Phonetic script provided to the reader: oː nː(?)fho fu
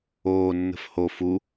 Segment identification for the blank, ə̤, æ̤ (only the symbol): ə̤